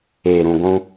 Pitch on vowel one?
low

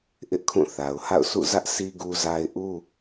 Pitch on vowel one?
high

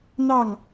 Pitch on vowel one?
falling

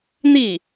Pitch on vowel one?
falling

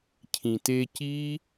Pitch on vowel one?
low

